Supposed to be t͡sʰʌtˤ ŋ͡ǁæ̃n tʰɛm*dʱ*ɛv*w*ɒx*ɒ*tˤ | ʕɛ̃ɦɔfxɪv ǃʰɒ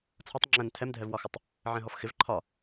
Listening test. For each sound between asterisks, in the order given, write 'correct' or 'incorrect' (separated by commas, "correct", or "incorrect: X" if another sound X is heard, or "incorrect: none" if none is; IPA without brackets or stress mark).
correct, correct, incorrect: ʌ